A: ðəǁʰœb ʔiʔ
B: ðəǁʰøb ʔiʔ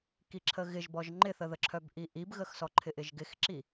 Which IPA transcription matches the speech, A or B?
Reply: A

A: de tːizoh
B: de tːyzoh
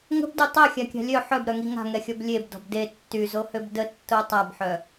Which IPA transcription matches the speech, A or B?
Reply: B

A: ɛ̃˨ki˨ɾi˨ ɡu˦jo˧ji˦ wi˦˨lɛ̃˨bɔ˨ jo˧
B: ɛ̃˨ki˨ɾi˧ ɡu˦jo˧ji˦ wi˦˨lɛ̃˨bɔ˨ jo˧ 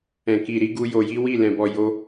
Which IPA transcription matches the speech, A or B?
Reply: B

